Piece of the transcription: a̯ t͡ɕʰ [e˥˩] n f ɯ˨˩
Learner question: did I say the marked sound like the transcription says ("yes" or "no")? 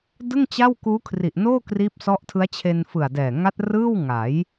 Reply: no